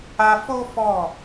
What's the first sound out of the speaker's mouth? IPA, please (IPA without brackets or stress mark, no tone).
a